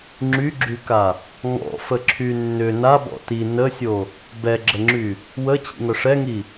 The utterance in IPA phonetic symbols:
ŋ͡ǁ y ɡ͡ǁ y k a | ŋ ɔ̰ f ə ǁʰ y nː ʏ n a b ɔ̰ t i n ə sʲ o | b ɛ ɡ͡ǁ ə ŋ͡ǁ y | w ə t͡ɕ ḭ ŋ œ ʂ ɛ ŋ i

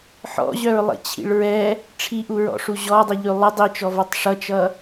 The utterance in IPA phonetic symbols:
ħ ɔ̰ ʑ œ ɹ lˠ ḭ t͡ɕʰ ḭ ɭ ɹ ɛ | ʈ͡ʂʰ i ʔ u ɹ ɔ̰ ʂ u ʑ ɔ dˤ i ʎ ʉ lˠ ɪ dˤ i t͡ʃ ɔ v ɔ tˤ ʂ ʌ t͡ʃ ʌ

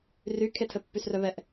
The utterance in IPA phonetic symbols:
r y kʰ e tʰ ɘ pː y s r œ β ɛ ʔ

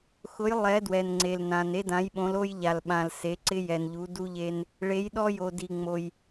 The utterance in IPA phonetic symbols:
x ʊ˨˦ j lˠ ɛ˨˦ d w ɛ˨ n ŋ͡ǀ e˨ l n ã˨ n e˦ d ã˨˦ j ɓ õ˨˦ l o˦ j ʎ a˨ l ɓ ã˨ l s e˨˦ ǀ ɪ˦ j ɛ˨ n ʎ u˨˦ d u˦ ʎ e˦ n | ɭ e˨˦ j ɗ ɔ˦ j o˨ d i˨ ŋ͡m o˨ j

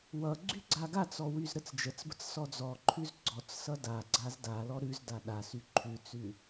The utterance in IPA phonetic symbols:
w ʌ ɡ͡ǀ y ɡ͡ǀ a ɡ a t͡s ɔ w y z ɾ ə t͡s d͡ʒ ə t͡s b ə t͡s s ɔ d͡z ɔ ǃʰ ʉ z ɡ͡ǀ ɔ t͡s s ʌ d a ɡ͡ǀ a z d a l ɔ ɾ ʉ z d a ɗ a s y ǃʰ ʉ t͡s ʉ

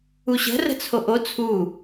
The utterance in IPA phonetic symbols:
u ɕ ə̤ r ə̤ t͡sʰ o ʔ o t͡sʰ u

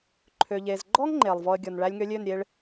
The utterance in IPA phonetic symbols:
ǃʰ ø˨ ʎ e˨ z ɡ͡ǃ ɔ˦ ŋ ŋ͡ǃ e˨ lˠ v ɔ˧ ə̯ ɡʲ ɔ˨ n ɭ æ˧ lʲ ŋ ø˧ lʲ ø˦˨ n ɾʲ e˧ ɭ

